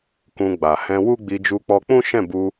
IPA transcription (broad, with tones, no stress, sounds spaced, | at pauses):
k ũ˧ ɡ͡b a˨ h ɛ̃˧ w u˦ ɡ͡b i˧ d͡ʒ u˧ k͡p ɔ˧ k͡p ũ˦ ʃ ɛ̃˦˨ b u˧